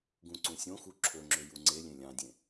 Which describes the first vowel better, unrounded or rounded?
rounded